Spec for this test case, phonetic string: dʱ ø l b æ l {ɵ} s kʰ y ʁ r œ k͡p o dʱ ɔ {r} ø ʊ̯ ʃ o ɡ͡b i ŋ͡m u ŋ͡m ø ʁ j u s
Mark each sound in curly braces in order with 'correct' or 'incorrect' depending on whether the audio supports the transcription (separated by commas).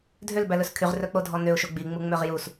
correct, incorrect